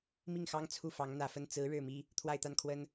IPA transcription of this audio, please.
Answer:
m i˥˩ ŋ x ɑ˥ ŋ t͡sʰ u˥˩ f ɑ˧˥ ŋ n̪ ä˨˩ f ə˥˩ n t͡s ɹ̩˧˥ ɻ ɻ̩˥˩ m i˥ | t̪ʰ w a˥˧ ɪ̯ t̪ a˥˩ n kʰ w ə˥ n

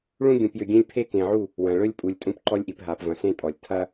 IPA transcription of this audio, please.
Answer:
ɭ ũ˦ ɡʲ ũ˨ p j ʏ˨ ɡʲ ẽ˦ lʲ pʰ e˦ k ẽ˨ ʕ u˦˨ | w ɐ̃˨ ɭ ɵ˦ lʲ pʼ u˨ lʲ tʼ ũ˦ p ǃ ɔ˦ lʲ ʔ i˨ p ɦ a˨ p v ɐ̃˨ s ẽ˦ tʼ ɔ˨ lʲ tʰ ɐ˦

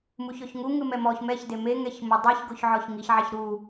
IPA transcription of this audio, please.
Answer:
m u ç ɔ ç ŋ u ŋ ɯ m ɛ m ɔ ç m ɛ ç d e m e ŋ ɛ ç m o dˤ i ç ɡ o ç ʕ ɔ ç ŋ i ç ʕ a ç ɾ u

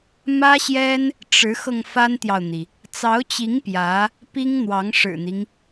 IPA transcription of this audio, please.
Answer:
m ä˥ ɕ j ɛ˥ n | ʈ͡ʂ ɻ̩˧˥ x ɤ˧ ŋ f a˥ n t̪ j ɑ˨ ʊ̯ n̪ i˩ | t͡s ɑ˧˥ ʊ̯ t͡ɕ i˧˥ ŋ p j ä˧˥ | p i˥ ŋ n̪ w ɑ˧˥ ŋ ʂ ɻ̩˨˩ n̪ i˦ ŋ

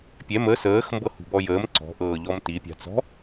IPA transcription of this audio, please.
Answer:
pʲ ɛ m ə s əː x m b ɤ h ṳ b ɔ j əː m ǀ ɔ̤ ʔ ɤː ʎ ɔ m t i pʲ a̤ t͡s ɔ̤

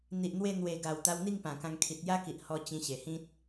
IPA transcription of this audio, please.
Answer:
n̪ i˨ ʔ n̪ w e˧ n̪ w e˨˩ ɡ a˨˩ w t̪ a˧ w n̪ i˥˧ ŋ p ã˨˩ k ã˧ ŋ kʰ i˨ t̚ j a˦ k i˨ ʔ h ɔ˧ t͡ɕ ĩ˧ ɕ e˨˩ h ĩ˦ t̚

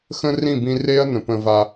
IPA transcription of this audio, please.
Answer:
x ə̃˦ r ĩ˦˨ b ĩ˧ r e˦ ɐ̯ n ə̃˨ p ə̃˧ v a˧

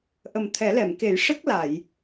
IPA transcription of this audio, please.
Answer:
ʔ ə˨˩ m t̪ʰ ɛ˨˩˦ l ɛ˨˩˨ m k e˨˩˦ j ʂ ə˦˥ k̚ l a˨˩˨ j

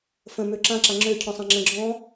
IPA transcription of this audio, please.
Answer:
f ə̃ m ø ǁ ã ǁ a ŋ͡ǁ ø cʰ ɔ̃ sˤ ã ŋ͡ǁ ə̃ ɡ͡ǁ ɔ̃

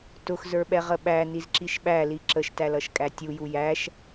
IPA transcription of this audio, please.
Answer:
t ʊ x z ə˞ ɓ ɛ ʁ ə ɓ æ n i z ǁ i ʃ ɓ æ l i ǁ ə ʃ t æ l ʌ ʃ kʼ æ tʲ u j u j æ ʃ

